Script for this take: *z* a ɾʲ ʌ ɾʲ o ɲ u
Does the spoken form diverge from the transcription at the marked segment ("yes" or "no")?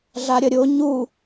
yes